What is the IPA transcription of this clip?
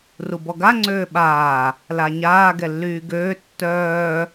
r u b ɔ ɡ a ŋ͡ǀ øː ɓ aː | l a ɲ aː ɡ ɛ lː yː ɡ øː tː œː

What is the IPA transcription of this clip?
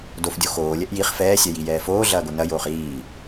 d o f dʲ o x oː lʲ ɛ ʔ j i χ f ɛː sʲ ɛ j i j ɛː f oː ɮ ɐː ɡ o n ɐ j oː χ iː

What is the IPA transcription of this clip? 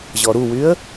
ʑ ɔ ɾ u w y ə̯

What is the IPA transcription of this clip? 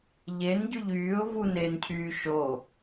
ʎ e n ɟ y ʎ yː ʊ̯ v u n eː n cʰ yː ʃ o

